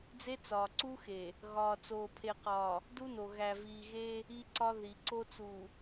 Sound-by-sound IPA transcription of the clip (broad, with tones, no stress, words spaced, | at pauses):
d͡ze˦t͡sɒː˨ǀu˦xe˨ | ɣɒː˨t͡soː˨pʰe˨qɒː˨ | du˦no˨ ɣæ˨viː˨ɣe˦ | i˦ǀɒ˦ ði˨ ǀo˦t͡su˨